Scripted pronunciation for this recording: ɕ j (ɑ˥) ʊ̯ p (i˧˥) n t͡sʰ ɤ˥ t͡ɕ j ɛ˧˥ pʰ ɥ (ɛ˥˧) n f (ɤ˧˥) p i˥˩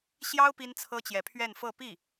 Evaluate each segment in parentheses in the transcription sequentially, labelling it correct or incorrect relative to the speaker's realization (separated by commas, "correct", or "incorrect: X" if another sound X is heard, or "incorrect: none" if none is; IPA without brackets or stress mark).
correct, incorrect: i˥, correct, incorrect: ɤ˥˧